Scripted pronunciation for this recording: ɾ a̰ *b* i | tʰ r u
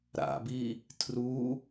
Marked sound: correct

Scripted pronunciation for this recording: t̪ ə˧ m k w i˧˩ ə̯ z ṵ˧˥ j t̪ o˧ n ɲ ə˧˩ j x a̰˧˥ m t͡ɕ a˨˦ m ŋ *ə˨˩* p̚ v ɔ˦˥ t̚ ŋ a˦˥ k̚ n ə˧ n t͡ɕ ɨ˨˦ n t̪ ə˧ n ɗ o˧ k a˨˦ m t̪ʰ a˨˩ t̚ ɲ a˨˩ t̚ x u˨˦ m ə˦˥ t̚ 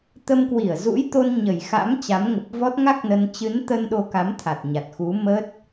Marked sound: correct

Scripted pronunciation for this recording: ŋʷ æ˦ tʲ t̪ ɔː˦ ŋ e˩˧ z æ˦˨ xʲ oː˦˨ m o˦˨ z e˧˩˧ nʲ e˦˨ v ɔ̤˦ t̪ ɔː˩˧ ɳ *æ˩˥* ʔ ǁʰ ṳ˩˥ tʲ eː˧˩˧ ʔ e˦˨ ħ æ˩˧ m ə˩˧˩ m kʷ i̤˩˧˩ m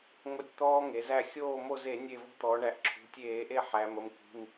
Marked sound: incorrect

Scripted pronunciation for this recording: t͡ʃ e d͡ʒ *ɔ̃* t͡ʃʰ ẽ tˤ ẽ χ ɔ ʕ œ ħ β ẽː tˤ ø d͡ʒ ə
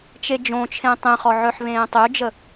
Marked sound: incorrect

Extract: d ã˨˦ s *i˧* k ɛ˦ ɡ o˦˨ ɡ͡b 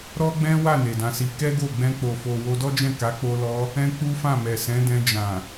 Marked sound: correct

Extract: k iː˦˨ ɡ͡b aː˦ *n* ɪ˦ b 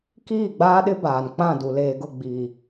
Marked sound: incorrect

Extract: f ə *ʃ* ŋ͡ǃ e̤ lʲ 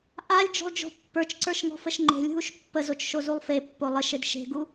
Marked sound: correct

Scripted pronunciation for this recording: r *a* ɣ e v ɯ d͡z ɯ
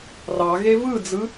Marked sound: incorrect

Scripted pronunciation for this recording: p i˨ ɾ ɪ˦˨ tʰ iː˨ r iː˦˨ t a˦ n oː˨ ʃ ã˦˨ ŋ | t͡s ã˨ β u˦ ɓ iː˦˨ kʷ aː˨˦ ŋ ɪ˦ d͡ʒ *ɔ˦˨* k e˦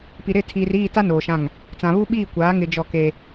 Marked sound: correct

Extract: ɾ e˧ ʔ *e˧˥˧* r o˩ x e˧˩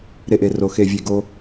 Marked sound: incorrect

